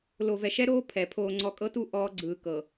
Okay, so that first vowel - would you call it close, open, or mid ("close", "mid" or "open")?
mid